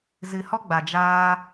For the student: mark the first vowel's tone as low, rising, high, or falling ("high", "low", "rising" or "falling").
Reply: low